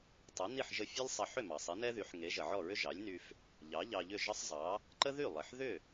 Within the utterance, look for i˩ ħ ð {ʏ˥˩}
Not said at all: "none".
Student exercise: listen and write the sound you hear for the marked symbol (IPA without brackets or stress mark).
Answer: ʏ˥˩